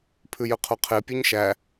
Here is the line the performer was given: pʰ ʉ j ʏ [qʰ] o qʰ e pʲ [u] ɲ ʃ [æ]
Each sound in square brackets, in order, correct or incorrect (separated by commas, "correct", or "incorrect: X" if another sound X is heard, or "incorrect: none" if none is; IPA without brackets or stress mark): correct, incorrect: ʉ, correct